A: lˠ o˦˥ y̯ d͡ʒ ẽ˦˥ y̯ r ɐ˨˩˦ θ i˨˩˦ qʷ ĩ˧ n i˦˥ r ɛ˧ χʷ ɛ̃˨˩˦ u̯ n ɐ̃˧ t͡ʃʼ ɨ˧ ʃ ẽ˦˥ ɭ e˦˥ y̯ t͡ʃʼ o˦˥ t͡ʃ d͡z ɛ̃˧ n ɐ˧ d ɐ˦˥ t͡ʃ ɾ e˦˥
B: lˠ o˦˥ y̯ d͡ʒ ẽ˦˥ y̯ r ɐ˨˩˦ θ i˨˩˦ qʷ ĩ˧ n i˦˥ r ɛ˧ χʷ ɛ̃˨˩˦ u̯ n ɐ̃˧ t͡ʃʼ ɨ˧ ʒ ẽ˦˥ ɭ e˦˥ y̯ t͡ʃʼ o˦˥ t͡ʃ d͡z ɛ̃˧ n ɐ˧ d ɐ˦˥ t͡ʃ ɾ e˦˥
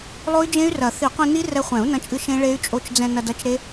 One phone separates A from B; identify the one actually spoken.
A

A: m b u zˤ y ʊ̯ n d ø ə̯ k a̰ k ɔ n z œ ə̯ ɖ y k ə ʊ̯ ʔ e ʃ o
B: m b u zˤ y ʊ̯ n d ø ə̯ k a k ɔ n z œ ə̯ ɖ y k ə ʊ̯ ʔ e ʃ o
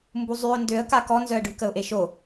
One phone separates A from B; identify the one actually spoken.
B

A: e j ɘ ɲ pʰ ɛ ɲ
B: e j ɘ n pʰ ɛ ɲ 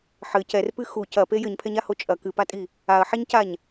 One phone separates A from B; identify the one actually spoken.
A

